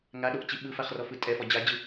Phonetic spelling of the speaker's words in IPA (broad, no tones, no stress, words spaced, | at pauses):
ŋaɗoʔt͡ɕi ɓɯfaχrɔfɯ tʼɛfɔ d͡ʑad͡ʑɯ